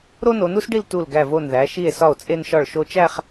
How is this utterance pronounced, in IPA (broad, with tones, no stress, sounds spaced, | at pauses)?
ɾ o˥ n o˩˧ n u˥ s ɖ i˥˧ l t u˧˩ l ɡ æ˧˩ v o˧˩ n ð æ˩˧ ʃ i˧˩ e̯ s ɒ˧˩ o̯ t͡sʼ e˧ n ʃ ɒ˧˩ ɭ ʃ o˧ t͡ʃ æ˥˧ χ